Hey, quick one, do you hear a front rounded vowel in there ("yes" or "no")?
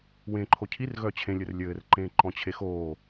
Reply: yes